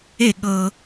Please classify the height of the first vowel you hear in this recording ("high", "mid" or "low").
mid